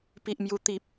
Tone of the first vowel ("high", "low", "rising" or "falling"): high